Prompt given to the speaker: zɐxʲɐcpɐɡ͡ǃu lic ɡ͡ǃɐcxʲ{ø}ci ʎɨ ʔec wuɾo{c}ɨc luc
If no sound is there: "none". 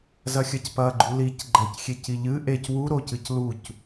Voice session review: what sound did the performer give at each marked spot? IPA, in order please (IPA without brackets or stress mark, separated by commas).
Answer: e, c